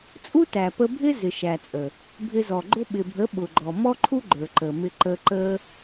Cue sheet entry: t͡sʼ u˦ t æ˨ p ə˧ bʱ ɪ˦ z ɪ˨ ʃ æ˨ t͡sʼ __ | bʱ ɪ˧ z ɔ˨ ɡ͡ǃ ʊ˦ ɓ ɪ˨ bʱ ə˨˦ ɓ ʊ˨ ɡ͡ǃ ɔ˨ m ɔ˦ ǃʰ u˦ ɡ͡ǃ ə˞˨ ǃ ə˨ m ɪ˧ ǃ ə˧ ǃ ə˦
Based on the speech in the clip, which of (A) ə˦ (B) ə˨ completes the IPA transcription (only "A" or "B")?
B